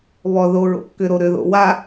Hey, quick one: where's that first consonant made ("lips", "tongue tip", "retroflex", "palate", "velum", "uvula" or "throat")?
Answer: lips